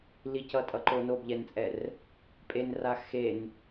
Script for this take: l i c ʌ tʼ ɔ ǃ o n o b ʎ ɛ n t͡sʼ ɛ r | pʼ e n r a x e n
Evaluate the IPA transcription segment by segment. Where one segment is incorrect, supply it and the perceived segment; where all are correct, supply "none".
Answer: ɔ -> ʌ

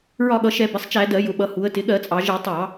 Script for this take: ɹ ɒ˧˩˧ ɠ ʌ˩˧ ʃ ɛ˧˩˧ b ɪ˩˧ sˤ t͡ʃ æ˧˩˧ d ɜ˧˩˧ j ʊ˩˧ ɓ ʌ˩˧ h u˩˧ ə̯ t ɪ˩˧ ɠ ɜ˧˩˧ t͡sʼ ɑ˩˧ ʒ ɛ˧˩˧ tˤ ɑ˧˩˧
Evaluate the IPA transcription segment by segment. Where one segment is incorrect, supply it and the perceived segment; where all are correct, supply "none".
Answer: none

